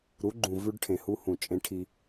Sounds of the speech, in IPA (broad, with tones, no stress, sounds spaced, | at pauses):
ɾ u˨˦ ɡ͡ǃ ũ˨ v ʉ˦ ɖ ʈʰ ẽ˨ h u˦ h ũ˦˨ t͡ʃʼ ẽ˦ ʈʰ i˦